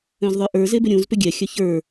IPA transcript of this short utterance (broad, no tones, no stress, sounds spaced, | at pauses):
œ̃ z ðˤ ə˞ ʔ ə˞ z e b ʏ ɾʲ ũ z p ʏ ɡʲ ɛ xʲ œ ç ə˞